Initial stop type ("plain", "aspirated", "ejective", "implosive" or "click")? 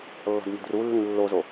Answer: plain